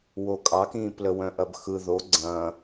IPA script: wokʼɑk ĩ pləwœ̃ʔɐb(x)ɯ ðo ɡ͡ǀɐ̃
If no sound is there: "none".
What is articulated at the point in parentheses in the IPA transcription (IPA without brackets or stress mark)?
x